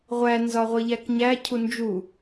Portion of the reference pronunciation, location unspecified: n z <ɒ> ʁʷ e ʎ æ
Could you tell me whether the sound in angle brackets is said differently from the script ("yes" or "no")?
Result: no